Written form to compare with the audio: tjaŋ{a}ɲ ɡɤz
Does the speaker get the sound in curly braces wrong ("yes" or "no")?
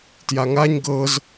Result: no